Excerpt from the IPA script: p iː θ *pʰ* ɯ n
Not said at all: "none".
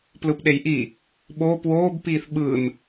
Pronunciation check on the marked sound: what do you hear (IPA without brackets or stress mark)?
ɓ